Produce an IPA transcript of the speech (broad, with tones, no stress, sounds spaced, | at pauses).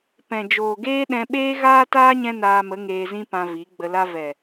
p ɛ̃˨ d͡ʒ oː˨ ɡ eː˦ ɗ ɛ̃˧ ɓ eː˦ ɣ aː˦ t aː˦ ɲ ɛ̃˦ n aː˧ m ə˨˦ ŋ eː˧ z ĩ˦ p ã˧ v i˨˦ ɡ͡b ə˧ l a˦ v ɛ˨